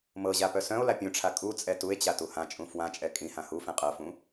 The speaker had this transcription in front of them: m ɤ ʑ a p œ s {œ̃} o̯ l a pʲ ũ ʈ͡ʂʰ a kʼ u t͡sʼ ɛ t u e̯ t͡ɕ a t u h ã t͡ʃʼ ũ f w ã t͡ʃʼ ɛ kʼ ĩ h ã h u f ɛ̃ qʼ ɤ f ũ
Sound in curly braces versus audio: correct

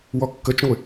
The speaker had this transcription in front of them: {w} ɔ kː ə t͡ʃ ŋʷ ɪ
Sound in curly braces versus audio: correct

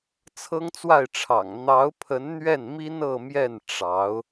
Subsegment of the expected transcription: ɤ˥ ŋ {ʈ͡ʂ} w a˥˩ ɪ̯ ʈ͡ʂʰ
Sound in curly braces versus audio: incorrect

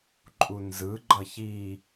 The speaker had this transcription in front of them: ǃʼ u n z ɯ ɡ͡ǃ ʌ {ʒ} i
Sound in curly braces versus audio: incorrect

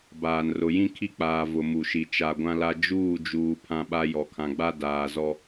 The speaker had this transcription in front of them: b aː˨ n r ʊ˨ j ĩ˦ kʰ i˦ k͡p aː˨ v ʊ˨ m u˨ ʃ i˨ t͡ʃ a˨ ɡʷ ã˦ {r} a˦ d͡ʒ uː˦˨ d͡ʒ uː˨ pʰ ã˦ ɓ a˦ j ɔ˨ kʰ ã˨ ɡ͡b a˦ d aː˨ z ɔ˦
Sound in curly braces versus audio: incorrect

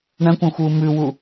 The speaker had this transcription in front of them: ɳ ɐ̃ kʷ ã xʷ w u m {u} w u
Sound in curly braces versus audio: incorrect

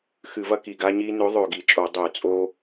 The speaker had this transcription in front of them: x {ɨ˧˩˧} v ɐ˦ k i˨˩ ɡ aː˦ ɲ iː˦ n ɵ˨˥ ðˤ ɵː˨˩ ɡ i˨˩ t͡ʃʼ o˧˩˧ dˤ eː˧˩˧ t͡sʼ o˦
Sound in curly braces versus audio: correct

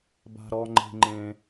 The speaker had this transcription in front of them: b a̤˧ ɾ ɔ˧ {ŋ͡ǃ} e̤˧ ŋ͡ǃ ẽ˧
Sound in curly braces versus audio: correct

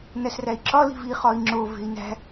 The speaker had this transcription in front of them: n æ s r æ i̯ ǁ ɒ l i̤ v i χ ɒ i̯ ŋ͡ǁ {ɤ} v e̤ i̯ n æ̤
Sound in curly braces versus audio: incorrect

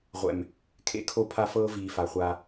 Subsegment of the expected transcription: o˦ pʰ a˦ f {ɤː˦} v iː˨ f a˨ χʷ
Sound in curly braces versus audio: correct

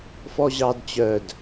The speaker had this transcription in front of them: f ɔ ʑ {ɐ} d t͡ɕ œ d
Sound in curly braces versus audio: incorrect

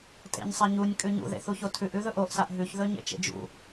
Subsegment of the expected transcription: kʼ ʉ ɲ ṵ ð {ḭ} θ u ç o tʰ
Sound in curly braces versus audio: incorrect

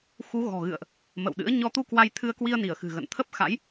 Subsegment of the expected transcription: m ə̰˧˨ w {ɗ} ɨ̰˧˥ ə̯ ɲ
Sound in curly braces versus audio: correct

